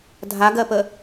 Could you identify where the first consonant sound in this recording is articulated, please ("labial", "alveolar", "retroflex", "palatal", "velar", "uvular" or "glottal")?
alveolar